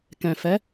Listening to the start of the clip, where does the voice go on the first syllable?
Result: low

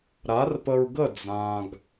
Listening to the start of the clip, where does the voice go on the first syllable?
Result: rising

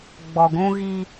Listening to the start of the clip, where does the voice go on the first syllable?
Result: low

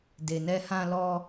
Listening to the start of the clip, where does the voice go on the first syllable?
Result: low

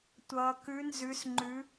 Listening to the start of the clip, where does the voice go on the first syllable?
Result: low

